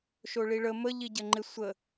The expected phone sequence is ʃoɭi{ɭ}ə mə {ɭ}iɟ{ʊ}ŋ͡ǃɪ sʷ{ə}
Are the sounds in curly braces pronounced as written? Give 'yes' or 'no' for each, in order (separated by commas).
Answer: yes, no, no, yes